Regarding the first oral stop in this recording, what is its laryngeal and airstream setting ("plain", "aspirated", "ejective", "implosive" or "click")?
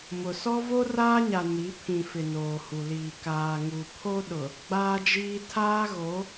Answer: aspirated